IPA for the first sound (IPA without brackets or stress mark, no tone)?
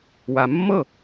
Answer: w